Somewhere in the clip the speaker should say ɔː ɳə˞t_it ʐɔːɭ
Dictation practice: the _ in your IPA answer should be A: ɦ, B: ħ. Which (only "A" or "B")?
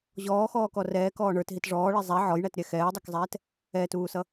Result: A